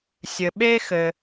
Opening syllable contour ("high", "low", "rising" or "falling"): low